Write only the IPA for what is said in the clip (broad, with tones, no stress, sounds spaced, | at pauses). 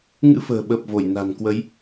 ŋ ɨ̰˧˥ f ə̤ː˨˩ ɓ ə˨˩ p̚ v o˧˩ j n a̤˨˩ n k w ə˨˦ j